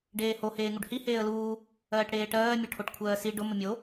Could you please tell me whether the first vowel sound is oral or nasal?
oral